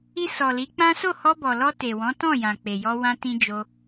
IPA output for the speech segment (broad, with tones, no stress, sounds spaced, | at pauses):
i˧ s ɔ˨ l i˨˦ k͡p ã˦ s o˦˨ h ɔ˧ b ɔ˨ l ɔ˧ t e˨ w ɔ̃˨˦ t ɔ̃˦˨ j ã˨ k͡p e˨ j ɔ˧ w ã˧ t ĩ˧ d͡ʒ o˧